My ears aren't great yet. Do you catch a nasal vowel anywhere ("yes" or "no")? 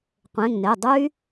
yes